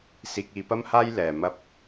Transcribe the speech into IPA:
s iː˨ k̚ iː˨ p ɐ˥ m h aː˥ j l ɛː˨ m ɐ˥ p̚

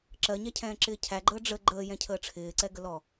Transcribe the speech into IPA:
ǁ ɜ ɲ æ cʰ ɛ̃ː ǁ ɪː cʰ æ ɡ͡ǃ əː ɖ͡ʐ ə ɡ͡ǃ əː j ɛ̃ cʰ əː ʈ͡ʂʰ ɪː ǀ ɛ ɡ ə l ɔ

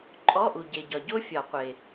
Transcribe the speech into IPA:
ǃʼ ɔ˧˥˧ ʔ u˨ ɟ e˨ ɟ ɒ˨ ɟ o˦˥ fʲ ɒ˨˩˦ qʷ e˨

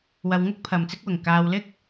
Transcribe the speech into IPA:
w ɐ˨ w ŋ ʊ˥ k̚ pʰ ɐ˨ m t͡s ɪ˥ k̚ w ʊ˨˩ ŋ k aː˨ w l ɪ˥ k̚

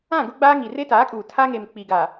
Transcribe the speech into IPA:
ã˦˨ ɡ ʊ˦ ɡ͡b aː˦ ŋ i˨ r e˦ t aː˨˦ kʼ uː˨ tʰ a˦ ŋ e˨ m k͡p i˨ ɡ a˨

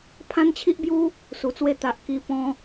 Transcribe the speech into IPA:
pʰ ã˦ n t͡ɕʰ i˦ ʔ b j u˦ | s u˨˩ t͡s w e˧ t̪ a˨ ʔ k i˧ p ɔ̃˧

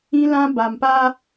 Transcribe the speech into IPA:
ĩ˦ l ã˦ b a˨ m p a˦

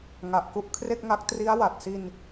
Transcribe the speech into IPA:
ŋ a˨˩ ʔ k u˦˥ ʔ kʰ r e˥˩ k̚ ŋ a˦˥ k̚ t r i˦˥ a̯ w a˨˩ t̚ s i˧ n

